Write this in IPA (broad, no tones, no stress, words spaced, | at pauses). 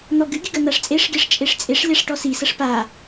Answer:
n̪ɔɡɨɡʲɨ ɡɐn̪aʂt͡sʼeʂɡʲɐʂ t͡ʃʼeʂt͡sʼeʂlʲaʂ ʈɔsisɐʂ pa